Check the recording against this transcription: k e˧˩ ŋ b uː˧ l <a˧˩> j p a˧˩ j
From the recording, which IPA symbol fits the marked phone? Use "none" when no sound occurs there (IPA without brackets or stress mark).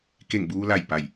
a˧˩